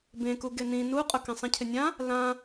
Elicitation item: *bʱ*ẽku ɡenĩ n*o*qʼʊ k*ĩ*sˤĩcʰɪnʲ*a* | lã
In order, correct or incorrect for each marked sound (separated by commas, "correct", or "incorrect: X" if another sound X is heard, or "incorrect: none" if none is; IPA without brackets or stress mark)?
incorrect: b, incorrect: u, incorrect: ẽ, incorrect: ã